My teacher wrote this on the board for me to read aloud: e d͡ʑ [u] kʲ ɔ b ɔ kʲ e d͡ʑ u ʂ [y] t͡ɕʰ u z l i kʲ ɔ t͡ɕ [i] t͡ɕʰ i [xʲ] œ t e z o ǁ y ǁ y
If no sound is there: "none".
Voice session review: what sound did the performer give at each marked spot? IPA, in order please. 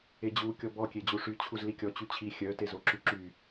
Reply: u, y, y, xʲ

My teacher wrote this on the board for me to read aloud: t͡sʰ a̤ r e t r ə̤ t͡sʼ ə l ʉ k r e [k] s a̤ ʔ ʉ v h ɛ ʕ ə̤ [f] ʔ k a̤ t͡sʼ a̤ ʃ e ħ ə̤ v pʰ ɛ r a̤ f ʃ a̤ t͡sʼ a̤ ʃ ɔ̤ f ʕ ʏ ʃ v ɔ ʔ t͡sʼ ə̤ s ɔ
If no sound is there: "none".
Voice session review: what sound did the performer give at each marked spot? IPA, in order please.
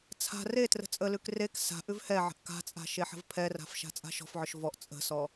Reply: k, none

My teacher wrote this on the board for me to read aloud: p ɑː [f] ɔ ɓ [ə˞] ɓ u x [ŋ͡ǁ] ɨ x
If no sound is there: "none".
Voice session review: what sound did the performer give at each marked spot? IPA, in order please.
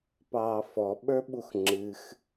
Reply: f, ə˞, ŋ͡ǁ

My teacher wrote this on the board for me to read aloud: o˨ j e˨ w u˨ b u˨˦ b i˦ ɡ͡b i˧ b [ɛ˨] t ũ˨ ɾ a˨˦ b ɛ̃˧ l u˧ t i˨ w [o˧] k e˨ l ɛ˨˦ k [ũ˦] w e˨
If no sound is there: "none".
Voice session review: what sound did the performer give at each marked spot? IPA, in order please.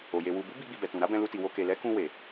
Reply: ɛ˨, o˧, ũ˧

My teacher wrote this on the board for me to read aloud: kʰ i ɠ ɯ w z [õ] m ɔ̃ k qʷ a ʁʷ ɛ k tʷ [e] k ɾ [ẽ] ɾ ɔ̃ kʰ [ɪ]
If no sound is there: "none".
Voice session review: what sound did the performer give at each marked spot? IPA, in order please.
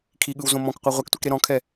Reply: õ, e, e, ɛ

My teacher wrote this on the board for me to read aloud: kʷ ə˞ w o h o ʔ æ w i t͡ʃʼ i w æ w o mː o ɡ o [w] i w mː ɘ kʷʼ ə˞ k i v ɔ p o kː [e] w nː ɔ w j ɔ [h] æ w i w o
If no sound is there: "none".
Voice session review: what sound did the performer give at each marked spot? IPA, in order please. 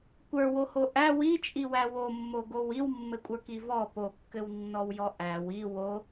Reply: w, ɘ, ʔ

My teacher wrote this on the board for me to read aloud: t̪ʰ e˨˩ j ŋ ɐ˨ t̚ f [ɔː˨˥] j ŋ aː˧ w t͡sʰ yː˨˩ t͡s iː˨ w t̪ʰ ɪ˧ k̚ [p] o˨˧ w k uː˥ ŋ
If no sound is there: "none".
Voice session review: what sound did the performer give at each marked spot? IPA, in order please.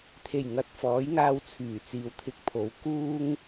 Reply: ɔː˨˥, pʰ

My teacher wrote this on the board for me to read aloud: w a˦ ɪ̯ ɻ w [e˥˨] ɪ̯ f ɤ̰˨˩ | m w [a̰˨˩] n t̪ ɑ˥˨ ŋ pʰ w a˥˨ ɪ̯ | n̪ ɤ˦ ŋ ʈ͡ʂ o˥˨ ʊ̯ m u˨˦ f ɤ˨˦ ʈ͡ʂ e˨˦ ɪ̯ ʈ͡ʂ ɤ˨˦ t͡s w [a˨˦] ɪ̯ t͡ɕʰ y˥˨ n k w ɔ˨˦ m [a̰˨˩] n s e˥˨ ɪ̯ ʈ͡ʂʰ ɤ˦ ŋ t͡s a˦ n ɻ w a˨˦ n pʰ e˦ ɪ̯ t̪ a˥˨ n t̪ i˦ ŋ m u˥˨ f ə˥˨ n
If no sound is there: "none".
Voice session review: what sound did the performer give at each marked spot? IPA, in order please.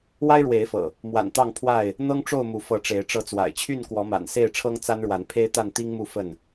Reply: e˨˦, a̰˨˩, a̰˨˩, a̰˨˩

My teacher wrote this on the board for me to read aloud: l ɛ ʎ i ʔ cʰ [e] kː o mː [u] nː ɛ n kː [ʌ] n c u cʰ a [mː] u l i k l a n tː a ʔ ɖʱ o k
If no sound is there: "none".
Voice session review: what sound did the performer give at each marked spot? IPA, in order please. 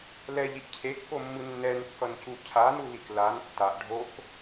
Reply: e, ɯ, ʌ, n

